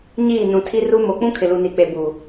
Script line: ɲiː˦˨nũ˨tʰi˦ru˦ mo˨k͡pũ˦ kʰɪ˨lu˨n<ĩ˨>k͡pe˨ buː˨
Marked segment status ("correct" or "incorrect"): incorrect